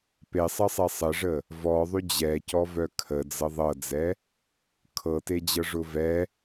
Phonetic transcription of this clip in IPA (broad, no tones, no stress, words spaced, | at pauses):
pesˤəsˤe sˤəʐə | vɔðˤy d͡ʑɛcɔvœ kʰəd͡zɤ ðˤɤd͡zɛ | kʰɤted͡ʑɤʐʊ vɛ